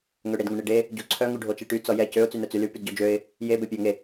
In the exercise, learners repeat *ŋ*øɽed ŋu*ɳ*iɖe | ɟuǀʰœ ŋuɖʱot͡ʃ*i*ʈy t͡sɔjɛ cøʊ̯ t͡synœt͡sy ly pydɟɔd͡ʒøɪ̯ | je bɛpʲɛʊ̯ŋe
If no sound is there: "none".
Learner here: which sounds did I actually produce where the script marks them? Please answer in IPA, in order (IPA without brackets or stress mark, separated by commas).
ŋ, ɳ, e